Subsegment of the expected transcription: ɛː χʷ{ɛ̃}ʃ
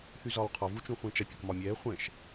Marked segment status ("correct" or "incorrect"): correct